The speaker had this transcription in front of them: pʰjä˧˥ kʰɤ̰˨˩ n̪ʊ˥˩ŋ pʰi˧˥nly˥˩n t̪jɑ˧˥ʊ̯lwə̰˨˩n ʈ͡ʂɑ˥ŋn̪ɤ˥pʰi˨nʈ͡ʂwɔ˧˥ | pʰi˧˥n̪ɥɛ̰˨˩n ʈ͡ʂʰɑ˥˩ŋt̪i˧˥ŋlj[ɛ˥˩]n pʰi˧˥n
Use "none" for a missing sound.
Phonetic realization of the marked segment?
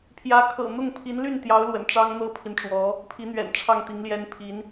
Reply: ɛ˥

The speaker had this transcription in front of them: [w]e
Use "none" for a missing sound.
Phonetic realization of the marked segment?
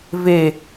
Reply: v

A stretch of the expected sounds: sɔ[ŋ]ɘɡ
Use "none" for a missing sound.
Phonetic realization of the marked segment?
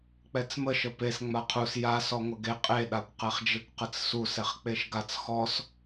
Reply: ŋʷ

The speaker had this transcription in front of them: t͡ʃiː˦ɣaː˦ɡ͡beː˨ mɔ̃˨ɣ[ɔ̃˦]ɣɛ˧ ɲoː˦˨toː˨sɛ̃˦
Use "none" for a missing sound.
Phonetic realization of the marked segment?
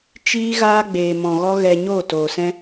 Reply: ɔ˦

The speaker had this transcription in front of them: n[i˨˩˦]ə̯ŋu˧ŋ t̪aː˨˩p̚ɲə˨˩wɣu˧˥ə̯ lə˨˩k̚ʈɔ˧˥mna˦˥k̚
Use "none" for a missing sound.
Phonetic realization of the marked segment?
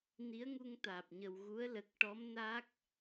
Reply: i˧˥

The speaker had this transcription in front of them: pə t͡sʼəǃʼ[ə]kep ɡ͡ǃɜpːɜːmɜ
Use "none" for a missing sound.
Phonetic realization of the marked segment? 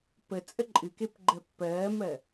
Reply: ɨ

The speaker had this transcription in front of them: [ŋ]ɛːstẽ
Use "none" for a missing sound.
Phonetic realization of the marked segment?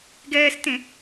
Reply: ɡ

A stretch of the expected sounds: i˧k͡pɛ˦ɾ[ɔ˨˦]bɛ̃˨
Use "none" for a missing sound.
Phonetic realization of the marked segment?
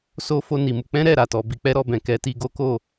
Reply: ɔ˧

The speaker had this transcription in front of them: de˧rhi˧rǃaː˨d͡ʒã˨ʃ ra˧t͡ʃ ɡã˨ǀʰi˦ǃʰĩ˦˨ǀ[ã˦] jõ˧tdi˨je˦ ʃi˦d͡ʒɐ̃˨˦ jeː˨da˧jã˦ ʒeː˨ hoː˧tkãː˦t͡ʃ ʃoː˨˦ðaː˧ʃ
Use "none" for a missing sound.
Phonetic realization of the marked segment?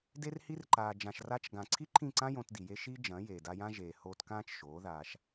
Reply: ã˦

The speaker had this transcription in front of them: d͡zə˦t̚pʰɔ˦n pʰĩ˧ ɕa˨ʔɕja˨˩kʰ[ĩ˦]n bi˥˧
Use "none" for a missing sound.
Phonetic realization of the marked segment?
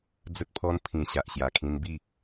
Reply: ĩ˧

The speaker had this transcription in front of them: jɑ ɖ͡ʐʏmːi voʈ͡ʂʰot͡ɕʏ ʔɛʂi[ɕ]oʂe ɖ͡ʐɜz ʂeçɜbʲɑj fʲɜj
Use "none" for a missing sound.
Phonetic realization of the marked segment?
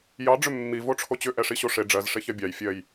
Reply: ɕ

